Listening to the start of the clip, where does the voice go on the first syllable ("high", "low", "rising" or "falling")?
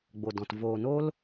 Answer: low